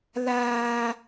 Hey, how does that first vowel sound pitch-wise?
low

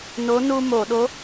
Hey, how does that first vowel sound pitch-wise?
rising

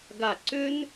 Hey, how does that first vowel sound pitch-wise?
falling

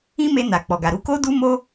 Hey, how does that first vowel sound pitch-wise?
high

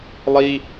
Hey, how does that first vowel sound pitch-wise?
high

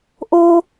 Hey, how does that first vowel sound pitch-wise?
high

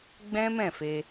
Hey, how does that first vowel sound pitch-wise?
high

